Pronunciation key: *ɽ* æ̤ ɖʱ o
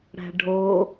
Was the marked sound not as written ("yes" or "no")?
no